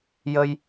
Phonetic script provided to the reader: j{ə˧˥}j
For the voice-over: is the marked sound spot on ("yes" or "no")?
no